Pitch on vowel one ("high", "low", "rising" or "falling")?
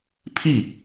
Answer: falling